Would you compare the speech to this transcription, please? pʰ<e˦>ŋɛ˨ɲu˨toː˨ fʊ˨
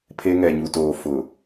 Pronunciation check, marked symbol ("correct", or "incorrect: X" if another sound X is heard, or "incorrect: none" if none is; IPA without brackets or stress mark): correct